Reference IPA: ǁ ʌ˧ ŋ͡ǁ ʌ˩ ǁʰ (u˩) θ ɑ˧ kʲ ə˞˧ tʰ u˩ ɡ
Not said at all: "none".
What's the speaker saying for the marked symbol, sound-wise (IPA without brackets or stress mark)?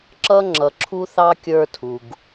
u˧